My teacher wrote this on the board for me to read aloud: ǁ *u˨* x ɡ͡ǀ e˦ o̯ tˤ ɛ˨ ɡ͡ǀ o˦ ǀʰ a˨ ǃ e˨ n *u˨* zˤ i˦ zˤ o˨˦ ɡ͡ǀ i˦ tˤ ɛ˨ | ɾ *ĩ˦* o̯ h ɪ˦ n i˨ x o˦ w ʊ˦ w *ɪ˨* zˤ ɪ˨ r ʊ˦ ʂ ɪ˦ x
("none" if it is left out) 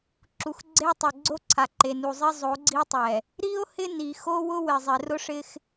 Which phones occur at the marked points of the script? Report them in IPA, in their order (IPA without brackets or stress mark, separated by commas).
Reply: u˨, u˨, i˦, ɪ˨